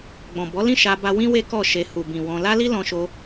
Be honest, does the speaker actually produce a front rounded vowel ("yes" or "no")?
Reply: no